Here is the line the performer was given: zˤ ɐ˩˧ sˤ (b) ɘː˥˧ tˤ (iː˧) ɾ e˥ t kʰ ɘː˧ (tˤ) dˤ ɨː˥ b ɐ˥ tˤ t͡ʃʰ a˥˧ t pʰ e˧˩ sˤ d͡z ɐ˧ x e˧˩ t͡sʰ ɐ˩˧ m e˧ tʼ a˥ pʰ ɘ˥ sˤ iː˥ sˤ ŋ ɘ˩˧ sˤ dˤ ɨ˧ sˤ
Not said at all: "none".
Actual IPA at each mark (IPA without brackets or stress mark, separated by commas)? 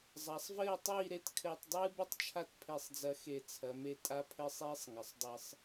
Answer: v, iː˥˧, tˤ